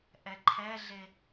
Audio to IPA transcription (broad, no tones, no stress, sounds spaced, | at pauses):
ʔ ɛ ǃʰ ɛ ɮ e